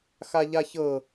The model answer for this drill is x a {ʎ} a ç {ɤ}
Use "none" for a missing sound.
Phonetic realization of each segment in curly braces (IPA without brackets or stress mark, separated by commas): ʎ, ɤ